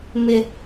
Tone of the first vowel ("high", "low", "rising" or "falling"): high